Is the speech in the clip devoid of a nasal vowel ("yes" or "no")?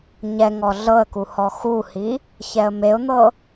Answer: yes